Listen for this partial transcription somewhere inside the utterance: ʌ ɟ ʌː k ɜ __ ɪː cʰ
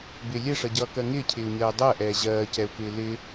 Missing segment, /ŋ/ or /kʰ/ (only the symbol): ŋ